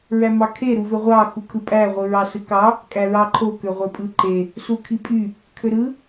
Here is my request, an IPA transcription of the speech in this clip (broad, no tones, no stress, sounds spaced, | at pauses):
ɹ æ m ɑ kʰ e ɾ u v ø ʁʷ ɑ x u kʰ ɯ pʼ æ ʁʷ ɯ ɹ ɑ s ɯ k ɑ | kʼ æ ɹ ɑ ǃʰ o k ø ʁʷ e pʼ ɯ ǃ e | s u kʰ i pʼ y | kʰ ø ɾ ɯ